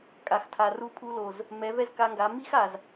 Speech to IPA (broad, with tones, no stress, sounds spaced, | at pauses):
kʼ a˨ x tʰ a˨ r u˧ pʰ u˧ l o˨ z | m ɛ˨˦ v ɛ˦ z k a˧ ŋ ɡ a˨˦ m i˦ x a˨ z